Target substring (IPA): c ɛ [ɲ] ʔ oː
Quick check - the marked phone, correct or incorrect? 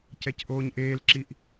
incorrect